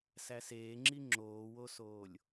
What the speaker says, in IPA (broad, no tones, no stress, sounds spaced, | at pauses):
s æ s eː ŋ͡ǁ i ŋ͡ǁ oː w o s oː lʲ